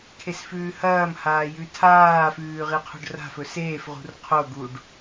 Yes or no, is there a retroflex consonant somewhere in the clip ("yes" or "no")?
yes